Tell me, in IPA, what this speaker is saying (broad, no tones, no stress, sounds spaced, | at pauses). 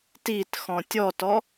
t i t x ɔ̃ tʲ ɔ t ɔ